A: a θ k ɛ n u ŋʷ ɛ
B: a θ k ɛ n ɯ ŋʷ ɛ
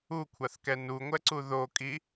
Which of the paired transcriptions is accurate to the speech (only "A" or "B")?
A